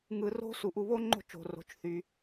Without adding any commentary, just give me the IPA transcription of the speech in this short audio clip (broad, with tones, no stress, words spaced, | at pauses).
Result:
ŋɯ˨ro̤˦ su˧ʔu˦ βo˦ŋ͡ǃo̤˦˨t͡ʃo̤˨ ro̤˧t͡ʃθy˧